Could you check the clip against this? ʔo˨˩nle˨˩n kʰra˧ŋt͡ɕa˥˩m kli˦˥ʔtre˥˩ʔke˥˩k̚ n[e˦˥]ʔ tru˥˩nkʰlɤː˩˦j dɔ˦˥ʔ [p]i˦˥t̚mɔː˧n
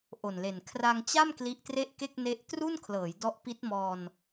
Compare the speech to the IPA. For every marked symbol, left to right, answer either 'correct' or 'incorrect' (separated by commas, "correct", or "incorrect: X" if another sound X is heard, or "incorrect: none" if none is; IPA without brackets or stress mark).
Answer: correct, correct